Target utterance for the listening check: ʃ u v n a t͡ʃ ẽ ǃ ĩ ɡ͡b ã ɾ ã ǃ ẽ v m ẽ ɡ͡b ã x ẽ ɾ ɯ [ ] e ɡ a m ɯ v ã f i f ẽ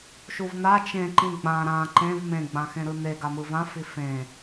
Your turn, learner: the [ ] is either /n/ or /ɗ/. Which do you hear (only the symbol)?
n